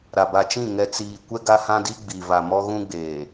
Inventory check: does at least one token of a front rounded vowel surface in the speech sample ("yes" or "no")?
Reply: no